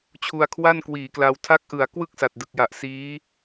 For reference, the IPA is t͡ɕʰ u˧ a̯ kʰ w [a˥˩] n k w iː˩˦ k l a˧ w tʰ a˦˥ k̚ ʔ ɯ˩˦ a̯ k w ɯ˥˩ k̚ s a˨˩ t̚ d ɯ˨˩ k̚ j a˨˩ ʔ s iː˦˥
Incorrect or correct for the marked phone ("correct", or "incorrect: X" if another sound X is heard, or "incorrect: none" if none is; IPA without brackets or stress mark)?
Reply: correct